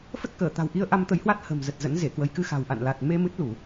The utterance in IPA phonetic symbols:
f ə˦˥ t̚ k əː˧˩ t̪ a̤˨˩ w ʔ i˧ ə̯ ʔ a˧ m t̪ ə˨˦ j h w a˦˥ t̚ h ə̤˨˩ m z ə˨˩ t̚ z ə̰˧˥ n z e˧˩ k w ə˨˦ j k ɨ˧ x a̤˨˩ w ʔ a̰˧˨ n l a˨˩ t̚ m e˧ m ɨ˦˥ t̚ l u˧˩˨

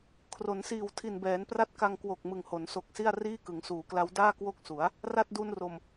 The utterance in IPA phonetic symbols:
kʰ r o˩˦ n s iː˨˩ w tʰ i˨˩ n b ɛː˩˦ n p r a˥˩ t̚ k a˧ ŋ k w o˨˩ k̚ m ɯ˨˩ ŋ h o˩˦ n s o˨˩ k̚ s i˥˩ a̯ r iː˥˩ k ɯ˩˦ ŋ s uː˩˦ k l a˦˥ w d aː˥˩ k w o˥˩ k̚ s u˩˦ a̯ | r a˥˩ t̚ d u˧ n r o˨˩ m

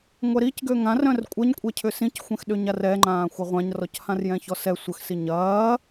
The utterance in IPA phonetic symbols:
ŋʷ ɛ ɾ i c ɡ ø ŋ ã r œ̃ r kʷʼ ɐ ɲ kʷʼ ɛ cʰ ʏ s ĩ c xʷ ɛ̃ x ɗ ø ɲ a r ɛ ŋ͡ǃ ãː xʷ ɐ ʁʷ ã ɲ r ɔ c h ã r j ɛ̃ ç ɔ s ɛ sʷ ə x s i ɲ ɐː

